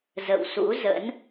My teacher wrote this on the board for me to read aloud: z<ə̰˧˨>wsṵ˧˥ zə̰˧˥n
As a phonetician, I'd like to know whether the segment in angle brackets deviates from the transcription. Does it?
no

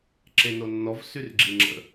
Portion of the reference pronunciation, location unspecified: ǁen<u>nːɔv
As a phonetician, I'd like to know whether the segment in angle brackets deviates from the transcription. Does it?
yes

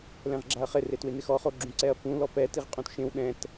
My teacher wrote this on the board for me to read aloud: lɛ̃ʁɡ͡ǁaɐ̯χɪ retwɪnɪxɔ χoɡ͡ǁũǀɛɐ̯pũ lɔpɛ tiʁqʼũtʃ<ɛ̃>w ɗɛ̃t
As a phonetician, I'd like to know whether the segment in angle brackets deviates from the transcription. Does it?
yes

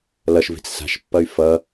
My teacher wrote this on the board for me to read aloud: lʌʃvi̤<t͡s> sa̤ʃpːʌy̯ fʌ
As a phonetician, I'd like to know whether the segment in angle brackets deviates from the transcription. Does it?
no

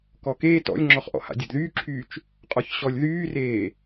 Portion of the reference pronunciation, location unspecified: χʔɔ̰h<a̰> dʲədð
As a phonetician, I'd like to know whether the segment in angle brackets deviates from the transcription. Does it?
no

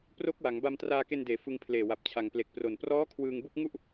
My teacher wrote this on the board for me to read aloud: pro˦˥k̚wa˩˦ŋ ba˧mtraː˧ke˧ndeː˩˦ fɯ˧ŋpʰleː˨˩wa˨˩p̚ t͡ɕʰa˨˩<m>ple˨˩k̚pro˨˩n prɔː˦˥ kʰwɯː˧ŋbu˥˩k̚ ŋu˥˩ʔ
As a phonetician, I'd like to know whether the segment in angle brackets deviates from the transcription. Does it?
yes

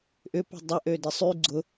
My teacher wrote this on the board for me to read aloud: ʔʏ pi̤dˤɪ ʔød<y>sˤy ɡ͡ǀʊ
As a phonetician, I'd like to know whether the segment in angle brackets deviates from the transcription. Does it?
yes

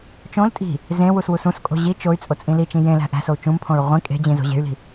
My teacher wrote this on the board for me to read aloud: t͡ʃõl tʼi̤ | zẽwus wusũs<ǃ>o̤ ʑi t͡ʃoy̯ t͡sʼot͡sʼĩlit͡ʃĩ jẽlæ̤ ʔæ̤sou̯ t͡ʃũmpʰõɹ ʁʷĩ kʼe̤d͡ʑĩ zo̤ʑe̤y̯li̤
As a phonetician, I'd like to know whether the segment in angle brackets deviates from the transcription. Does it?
yes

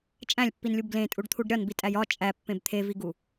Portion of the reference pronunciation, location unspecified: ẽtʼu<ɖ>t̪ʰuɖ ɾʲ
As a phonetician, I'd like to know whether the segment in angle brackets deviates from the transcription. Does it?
no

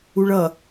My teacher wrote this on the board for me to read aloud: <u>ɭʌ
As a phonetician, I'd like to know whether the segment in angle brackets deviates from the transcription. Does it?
no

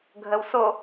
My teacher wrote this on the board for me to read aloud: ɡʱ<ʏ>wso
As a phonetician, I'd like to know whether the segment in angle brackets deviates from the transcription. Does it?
yes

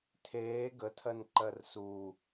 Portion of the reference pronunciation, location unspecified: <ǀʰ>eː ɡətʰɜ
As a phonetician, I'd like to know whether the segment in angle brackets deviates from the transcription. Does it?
yes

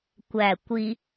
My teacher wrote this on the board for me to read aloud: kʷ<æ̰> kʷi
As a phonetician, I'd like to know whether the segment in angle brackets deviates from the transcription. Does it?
yes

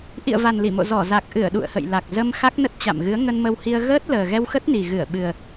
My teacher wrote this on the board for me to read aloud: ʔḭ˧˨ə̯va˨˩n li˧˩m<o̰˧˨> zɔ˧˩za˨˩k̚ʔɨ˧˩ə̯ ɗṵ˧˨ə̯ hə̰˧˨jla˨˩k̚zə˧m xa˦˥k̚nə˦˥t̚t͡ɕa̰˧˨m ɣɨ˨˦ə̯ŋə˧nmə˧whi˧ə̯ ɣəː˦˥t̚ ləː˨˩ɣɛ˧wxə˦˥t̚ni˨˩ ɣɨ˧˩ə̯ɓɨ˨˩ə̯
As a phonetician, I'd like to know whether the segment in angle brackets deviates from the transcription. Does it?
no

